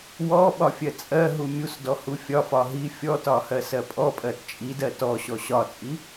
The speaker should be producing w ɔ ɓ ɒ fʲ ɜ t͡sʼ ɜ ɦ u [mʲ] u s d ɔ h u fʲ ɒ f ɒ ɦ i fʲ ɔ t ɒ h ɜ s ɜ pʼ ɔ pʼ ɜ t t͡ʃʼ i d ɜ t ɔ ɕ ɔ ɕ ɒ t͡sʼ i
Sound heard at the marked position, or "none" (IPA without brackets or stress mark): mʲ